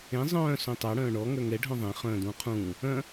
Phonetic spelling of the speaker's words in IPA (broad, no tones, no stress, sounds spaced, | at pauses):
ẽ zˤ œ̃ː s õ tˤ a ɽ œ̃ː ɳ ɔ ŋ œ ŋ ɛ ɖʱ œ̃ ðˤ ẽ χ œ̃ː d ũː qʰ ũː | œ̃